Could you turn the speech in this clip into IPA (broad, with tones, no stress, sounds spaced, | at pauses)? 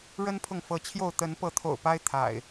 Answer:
ɻ ə˦ n pʰ ʊ˨ ŋ f ɤ˨˦ t͡ɕʰ j o˥˨ ʊ̯ t̪ ə˨˦ n p ɤ˨˦ t̪ʰ o̰˨˩ ʊ̯ p a˦ ɪ̯ t̪ʰ a̰˨˩ ɪ̯